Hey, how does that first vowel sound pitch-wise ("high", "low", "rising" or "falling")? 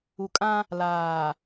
low